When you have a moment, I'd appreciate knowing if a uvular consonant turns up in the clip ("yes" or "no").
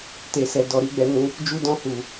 no